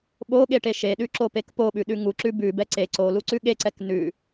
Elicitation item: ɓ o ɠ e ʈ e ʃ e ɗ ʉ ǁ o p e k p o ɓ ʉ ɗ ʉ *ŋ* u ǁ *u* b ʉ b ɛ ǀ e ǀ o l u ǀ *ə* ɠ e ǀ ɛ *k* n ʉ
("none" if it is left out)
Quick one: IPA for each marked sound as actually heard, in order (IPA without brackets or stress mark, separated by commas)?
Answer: ŋ, ʉ, ʉ, k